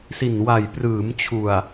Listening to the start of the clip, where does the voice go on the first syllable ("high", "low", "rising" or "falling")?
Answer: low